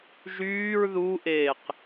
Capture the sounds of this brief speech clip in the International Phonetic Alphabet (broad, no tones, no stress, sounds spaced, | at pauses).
ʒ yː ɹ ð u ʔ eː q